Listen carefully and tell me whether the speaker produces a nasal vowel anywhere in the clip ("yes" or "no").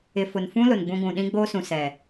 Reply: yes